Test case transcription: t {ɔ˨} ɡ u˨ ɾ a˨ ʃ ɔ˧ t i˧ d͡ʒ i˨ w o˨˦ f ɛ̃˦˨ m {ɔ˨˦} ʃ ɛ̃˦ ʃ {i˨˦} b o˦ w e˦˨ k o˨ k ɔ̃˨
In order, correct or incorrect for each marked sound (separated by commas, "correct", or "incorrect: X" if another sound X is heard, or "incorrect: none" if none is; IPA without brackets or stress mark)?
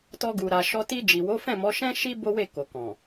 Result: incorrect: ɔ˧, correct, incorrect: i˦